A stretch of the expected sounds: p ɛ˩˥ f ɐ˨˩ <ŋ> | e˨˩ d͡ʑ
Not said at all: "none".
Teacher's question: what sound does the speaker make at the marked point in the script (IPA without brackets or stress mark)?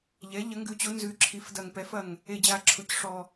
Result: ŋ